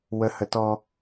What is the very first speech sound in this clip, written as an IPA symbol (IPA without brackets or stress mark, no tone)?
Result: w